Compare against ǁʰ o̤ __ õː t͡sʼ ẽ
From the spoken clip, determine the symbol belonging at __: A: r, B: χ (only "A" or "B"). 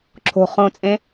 B